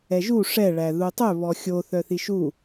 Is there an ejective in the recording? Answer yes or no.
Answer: no